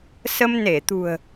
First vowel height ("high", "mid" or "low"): mid